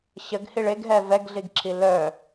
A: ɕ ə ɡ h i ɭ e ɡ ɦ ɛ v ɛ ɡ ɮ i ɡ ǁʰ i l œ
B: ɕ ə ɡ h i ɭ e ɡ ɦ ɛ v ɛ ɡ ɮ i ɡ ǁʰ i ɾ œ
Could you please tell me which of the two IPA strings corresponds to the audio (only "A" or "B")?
A